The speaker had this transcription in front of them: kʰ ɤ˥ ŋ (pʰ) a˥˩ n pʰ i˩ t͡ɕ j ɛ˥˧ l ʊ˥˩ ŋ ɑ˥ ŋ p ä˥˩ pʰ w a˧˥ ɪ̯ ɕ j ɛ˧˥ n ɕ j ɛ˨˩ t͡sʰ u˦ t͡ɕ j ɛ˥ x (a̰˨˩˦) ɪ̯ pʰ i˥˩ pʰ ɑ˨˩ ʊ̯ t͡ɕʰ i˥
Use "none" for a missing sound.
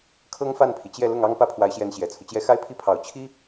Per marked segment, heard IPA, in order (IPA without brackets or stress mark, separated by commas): f, a˥